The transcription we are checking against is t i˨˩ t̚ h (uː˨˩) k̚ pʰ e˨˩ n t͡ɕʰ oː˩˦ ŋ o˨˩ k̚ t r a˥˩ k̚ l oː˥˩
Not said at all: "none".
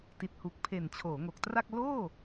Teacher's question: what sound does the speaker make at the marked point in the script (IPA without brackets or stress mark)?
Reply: u˨˩